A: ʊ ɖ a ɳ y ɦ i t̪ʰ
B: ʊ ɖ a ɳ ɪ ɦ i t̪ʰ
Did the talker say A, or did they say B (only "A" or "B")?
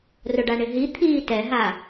B